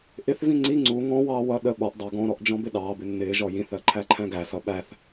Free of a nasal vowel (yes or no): no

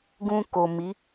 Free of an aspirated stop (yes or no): yes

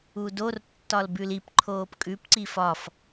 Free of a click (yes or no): no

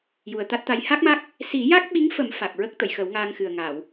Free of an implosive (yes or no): no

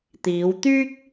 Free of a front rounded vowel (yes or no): no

